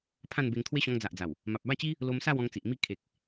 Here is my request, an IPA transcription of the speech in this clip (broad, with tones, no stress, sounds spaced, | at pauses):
pʰ ã˥˧ n b e˧ ŋ t̪ʰ w e˦ ɕ ɔ̃˧ ŋ d͡z a˨ ʔ d͡z a˨˩ w | m a˨ p̚ b a˥˧ t͡ɕ i˦ | l o˧ m s a˥˧ w ɔ̃˧ ŋ t͡s i˨ ʔ m i˥˧ kʰ e˨ k̚